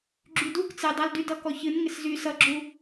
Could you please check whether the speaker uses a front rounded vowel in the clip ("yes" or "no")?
yes